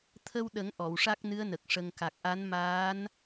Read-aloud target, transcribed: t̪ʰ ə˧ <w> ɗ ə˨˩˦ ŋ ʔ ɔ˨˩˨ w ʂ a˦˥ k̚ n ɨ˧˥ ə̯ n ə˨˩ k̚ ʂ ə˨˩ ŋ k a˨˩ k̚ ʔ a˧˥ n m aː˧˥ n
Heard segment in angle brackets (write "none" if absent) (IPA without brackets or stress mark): w